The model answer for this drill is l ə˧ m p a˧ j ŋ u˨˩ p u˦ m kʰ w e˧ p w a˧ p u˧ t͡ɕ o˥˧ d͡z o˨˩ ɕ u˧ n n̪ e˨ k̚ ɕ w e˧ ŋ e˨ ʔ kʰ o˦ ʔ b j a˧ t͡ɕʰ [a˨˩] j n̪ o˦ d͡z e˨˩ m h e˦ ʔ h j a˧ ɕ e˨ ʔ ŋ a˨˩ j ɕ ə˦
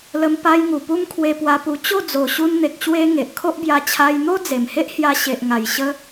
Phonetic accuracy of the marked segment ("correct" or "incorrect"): incorrect